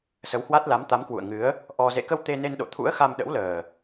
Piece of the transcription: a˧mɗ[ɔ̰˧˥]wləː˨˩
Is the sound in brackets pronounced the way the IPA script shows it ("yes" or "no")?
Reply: no